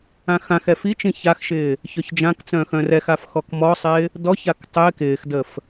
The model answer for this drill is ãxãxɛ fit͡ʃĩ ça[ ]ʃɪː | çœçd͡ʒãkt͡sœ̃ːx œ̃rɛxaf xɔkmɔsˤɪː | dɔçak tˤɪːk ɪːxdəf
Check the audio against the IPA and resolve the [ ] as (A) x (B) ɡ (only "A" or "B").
A